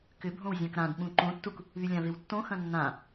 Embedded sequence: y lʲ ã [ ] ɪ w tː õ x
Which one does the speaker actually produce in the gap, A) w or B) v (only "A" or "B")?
B